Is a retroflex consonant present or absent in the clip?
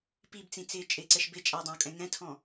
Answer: absent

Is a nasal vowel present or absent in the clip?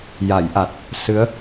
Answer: absent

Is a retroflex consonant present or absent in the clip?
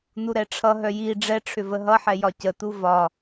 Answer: present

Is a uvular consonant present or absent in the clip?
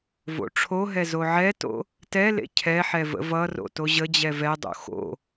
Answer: absent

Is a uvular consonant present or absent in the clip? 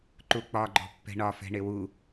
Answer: absent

